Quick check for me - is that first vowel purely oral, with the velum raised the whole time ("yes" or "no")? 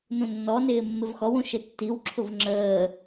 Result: no